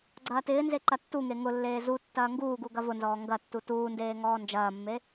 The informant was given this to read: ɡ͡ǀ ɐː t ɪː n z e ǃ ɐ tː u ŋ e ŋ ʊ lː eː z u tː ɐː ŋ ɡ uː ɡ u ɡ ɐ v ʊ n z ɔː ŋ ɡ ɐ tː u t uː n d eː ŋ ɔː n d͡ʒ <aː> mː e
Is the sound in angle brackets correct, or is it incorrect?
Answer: incorrect